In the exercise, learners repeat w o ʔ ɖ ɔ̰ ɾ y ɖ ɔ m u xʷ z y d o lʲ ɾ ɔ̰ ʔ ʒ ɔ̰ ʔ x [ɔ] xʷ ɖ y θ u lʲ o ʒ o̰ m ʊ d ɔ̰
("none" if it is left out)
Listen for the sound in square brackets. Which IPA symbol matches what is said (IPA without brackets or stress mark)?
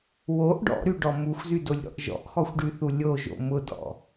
ɔ